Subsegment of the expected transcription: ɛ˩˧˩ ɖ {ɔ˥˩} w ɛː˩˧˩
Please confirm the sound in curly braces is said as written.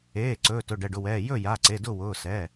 no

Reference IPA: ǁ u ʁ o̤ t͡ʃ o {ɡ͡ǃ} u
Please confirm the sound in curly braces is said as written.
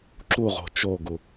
no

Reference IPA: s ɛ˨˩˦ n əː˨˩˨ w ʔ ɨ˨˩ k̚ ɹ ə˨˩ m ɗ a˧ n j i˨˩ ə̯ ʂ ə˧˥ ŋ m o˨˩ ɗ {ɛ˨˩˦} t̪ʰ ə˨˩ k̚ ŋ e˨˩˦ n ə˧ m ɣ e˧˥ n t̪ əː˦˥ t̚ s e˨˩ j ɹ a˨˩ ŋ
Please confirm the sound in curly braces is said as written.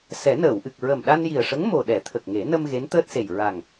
yes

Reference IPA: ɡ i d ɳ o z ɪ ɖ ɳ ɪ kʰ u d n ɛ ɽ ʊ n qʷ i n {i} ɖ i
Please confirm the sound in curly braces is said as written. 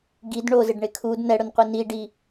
yes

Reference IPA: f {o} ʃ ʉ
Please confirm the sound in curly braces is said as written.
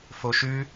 yes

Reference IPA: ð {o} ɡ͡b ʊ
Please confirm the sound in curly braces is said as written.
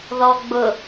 no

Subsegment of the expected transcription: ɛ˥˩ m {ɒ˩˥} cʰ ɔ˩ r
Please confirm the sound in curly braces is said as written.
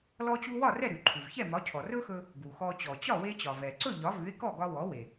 yes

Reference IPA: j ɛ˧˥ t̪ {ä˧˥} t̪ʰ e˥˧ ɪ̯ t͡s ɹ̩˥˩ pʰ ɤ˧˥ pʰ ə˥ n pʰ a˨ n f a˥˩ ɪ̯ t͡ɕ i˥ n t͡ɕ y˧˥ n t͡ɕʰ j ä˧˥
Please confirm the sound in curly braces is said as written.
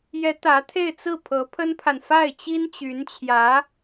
yes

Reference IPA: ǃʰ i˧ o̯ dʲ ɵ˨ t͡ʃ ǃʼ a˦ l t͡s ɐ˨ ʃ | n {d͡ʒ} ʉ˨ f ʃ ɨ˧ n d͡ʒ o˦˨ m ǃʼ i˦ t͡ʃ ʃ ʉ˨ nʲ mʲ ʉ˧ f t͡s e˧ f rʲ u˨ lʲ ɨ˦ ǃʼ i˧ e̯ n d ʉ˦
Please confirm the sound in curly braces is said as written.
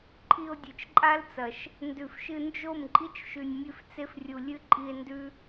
no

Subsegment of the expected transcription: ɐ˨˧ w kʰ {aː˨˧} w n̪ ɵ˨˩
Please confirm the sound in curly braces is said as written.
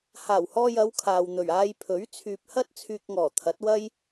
no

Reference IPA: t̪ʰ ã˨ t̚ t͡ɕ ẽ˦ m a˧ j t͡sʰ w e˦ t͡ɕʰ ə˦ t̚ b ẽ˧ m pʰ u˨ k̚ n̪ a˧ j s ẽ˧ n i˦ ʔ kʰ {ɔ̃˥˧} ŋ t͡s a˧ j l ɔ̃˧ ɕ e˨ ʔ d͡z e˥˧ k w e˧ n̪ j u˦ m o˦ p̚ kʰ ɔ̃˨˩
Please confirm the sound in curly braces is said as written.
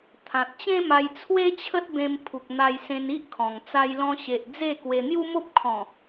no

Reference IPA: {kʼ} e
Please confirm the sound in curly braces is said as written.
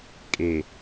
yes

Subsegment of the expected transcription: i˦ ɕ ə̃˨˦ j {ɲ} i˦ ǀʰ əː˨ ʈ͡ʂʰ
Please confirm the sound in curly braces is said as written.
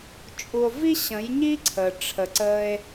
yes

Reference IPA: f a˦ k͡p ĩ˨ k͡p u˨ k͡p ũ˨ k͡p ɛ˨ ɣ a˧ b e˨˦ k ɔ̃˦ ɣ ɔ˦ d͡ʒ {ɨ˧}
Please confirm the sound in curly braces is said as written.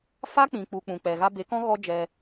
no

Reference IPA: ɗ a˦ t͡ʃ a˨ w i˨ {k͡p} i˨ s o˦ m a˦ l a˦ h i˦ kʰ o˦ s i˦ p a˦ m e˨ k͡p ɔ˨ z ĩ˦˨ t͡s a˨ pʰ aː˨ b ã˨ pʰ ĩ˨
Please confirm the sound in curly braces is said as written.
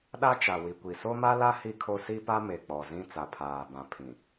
no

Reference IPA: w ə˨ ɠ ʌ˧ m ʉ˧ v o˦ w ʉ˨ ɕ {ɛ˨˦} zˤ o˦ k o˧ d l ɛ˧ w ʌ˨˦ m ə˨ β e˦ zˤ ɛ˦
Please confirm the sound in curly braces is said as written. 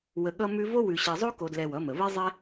no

